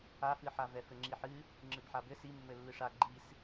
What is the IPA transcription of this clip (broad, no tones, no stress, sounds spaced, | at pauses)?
a f ɨ ħ a v ɛ f ɘ ŋ͡ǁ i ħ ɨ | ŋ͡ǁ ɨ b ħ a b ɘ s i mː ɘ lː ɨ ʂ a ɡ͡ǃ i s